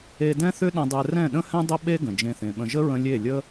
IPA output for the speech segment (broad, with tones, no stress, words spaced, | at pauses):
e˧dɛ̃˦θʏ˦ ɗə̃˧dˤɛ˧ rɛ̃˦˨ɗə̃˦hɛ̃˦ dˤə˦ɓe˦ ɡə̃˨d͡ʒẽ˧θẽ˨ɓə̃˧ ʒə˦ɹə̃˧ lʲe˦˨ lʲə˦